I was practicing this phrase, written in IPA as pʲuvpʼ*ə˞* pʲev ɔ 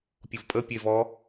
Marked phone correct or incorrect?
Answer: incorrect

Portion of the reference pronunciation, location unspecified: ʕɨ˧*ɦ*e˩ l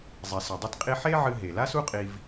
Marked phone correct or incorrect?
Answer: correct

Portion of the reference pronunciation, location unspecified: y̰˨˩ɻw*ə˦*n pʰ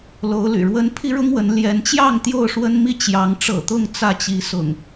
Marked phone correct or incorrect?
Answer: correct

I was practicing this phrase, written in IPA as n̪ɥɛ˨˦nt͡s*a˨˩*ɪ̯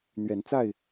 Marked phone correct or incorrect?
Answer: incorrect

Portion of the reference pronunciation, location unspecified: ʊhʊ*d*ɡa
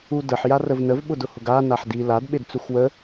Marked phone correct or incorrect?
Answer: incorrect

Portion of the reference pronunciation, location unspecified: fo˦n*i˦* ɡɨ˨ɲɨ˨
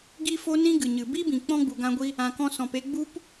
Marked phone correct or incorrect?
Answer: incorrect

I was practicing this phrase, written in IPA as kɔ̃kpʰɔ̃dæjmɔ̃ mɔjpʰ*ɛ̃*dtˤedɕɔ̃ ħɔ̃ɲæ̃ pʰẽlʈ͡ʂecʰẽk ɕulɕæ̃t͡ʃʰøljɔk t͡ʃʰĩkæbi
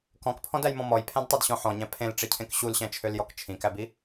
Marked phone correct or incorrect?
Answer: incorrect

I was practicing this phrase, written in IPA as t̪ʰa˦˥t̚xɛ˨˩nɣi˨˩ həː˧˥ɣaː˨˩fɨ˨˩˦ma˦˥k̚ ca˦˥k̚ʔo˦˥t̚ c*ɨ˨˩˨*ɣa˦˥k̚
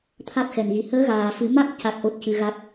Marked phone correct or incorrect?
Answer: incorrect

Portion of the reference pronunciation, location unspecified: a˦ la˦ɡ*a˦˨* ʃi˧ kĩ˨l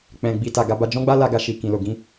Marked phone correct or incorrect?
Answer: correct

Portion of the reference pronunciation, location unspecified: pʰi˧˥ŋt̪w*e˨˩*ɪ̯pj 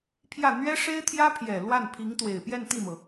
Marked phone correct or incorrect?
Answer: correct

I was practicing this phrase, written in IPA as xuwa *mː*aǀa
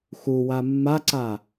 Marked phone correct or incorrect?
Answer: correct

